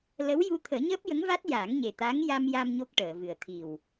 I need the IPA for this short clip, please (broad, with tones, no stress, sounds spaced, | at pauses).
l ə˧˥ w j u˧ t̪ʰ əː˨˩˦ ɲ əː˦˥ p̚ j ə˧˥ ŋ v a˦˥ t̚ j a˨˩˦ ŋ ɲ e˨˩ t̪ a˧˥ ŋ j a˧ m j a˧ m ɲ o˦˥ k̚ ʈ əː˨˩˨ v ɨ˨˩ ə̯ t̪ʰ i˨˩ w